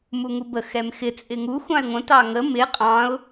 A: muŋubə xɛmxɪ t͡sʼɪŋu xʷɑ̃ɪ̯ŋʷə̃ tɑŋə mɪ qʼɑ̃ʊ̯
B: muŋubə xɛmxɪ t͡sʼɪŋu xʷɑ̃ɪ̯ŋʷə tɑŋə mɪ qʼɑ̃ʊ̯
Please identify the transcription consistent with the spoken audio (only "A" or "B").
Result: A